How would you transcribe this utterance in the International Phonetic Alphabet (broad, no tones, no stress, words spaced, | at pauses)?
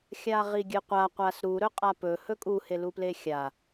xʲaʁiɡʲɨqʷa qʷasɾuɾɵqʼa pɵhɵ kʼuheluple xʲa